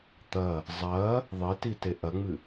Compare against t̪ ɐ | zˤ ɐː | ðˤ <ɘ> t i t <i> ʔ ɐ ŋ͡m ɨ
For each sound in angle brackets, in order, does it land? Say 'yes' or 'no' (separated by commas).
yes, no